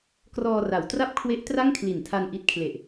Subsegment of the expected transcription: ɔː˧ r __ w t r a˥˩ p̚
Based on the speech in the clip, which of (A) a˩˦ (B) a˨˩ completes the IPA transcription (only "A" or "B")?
A